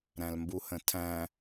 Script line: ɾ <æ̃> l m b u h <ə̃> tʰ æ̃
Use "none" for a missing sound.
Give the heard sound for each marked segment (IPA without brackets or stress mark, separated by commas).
æ̃, ə̃